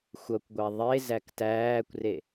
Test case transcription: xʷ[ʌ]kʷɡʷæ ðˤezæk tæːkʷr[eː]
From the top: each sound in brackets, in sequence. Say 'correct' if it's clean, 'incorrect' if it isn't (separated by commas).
correct, incorrect